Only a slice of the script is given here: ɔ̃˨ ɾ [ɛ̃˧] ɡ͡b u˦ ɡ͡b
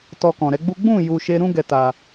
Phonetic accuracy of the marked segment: incorrect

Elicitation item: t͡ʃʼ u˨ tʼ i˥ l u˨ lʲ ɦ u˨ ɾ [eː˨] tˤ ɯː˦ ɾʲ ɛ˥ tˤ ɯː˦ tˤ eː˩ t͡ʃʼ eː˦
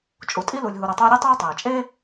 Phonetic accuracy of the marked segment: incorrect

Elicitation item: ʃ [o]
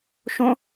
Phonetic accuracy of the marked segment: incorrect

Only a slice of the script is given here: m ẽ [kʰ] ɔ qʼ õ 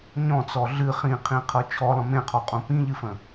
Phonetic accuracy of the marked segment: incorrect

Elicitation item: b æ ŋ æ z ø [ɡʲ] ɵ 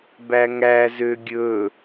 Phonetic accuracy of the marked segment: correct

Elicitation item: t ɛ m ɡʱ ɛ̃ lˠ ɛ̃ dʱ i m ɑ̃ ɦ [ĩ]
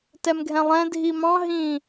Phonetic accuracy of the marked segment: correct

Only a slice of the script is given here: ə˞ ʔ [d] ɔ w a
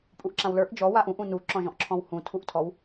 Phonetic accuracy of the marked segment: incorrect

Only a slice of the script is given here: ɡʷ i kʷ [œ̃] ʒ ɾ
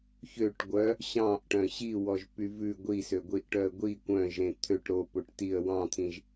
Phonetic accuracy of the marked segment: correct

